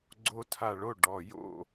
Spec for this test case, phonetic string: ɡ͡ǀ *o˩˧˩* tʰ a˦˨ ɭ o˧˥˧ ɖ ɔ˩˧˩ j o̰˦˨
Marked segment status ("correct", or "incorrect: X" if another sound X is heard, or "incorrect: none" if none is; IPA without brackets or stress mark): incorrect: o˦˥